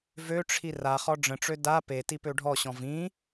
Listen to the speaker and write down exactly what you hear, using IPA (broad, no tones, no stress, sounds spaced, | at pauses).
v ø ʈ͡ʂʰ i r a χ ɔ ɖ͡ʐ ə̃ ʈ͡ʂ ø d a p e t i p ø ɖʱ ɔ ɕ ɔ̃ v ĩ